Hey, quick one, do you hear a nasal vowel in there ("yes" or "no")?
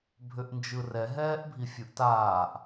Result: no